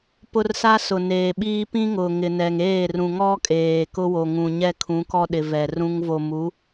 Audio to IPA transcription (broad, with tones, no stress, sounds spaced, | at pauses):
p ʊ˦ r s a˦ s ʊ˨ n eː˨ ɓ iː˦ p ĩ˦ ŋ ʊ˨ ŋ ɪ˨ n ɛ˨ ŋ eː˦˨ r ũ˨ ŋ ɔ˦ kʼ eː˨ k ʊ˦ w o˨ ŋ ũ˨ ɲ ɛ˦ kʰ ũ˨˦ k ɔ˦ ɗ ɪ˨ v ɛ˨ r ũ˦ ŋ v o˨ m u˨˦